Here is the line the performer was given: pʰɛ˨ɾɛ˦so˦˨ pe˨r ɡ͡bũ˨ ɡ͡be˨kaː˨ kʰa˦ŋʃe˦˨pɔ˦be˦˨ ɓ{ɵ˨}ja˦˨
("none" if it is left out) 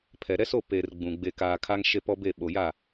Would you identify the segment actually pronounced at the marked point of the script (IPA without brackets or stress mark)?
o˨